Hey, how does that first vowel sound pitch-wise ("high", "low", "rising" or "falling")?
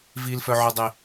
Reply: low